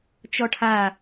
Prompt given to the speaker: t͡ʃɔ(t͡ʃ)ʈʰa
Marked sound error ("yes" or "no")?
yes